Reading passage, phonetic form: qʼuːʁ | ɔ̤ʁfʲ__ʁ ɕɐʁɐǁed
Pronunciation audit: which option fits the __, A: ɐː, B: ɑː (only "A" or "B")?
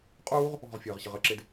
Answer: A